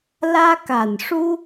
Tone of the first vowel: high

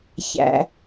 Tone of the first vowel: low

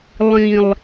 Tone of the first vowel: low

